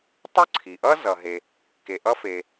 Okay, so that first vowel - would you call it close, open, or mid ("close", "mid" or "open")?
close